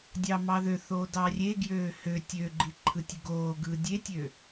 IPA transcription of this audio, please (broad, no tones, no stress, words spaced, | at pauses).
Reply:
dʲɑmɑðøθoː dɑrʲeɡjøː hø tʲøɡ͡ǃi ǃʰɯtʲɯɡoːɡɯː dʲetʲø